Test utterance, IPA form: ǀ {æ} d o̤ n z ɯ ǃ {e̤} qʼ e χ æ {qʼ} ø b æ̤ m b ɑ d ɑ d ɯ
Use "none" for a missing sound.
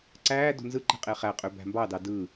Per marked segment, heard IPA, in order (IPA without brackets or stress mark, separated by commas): æː, e̤, qʼ